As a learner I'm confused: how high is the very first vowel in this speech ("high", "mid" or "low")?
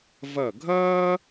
low